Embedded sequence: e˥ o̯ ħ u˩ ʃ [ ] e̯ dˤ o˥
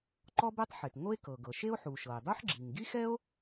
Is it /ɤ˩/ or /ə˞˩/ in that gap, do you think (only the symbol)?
ɤ˩